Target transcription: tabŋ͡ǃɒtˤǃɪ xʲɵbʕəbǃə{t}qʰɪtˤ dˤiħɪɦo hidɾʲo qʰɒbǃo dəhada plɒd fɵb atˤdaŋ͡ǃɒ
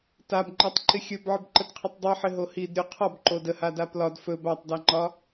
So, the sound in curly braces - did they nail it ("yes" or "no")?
yes